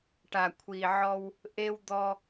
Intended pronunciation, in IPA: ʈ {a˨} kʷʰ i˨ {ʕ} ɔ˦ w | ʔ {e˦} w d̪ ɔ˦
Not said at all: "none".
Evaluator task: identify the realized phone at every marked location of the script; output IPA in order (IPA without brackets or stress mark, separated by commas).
a˨, ʕ, e˦